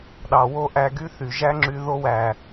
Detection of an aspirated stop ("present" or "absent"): absent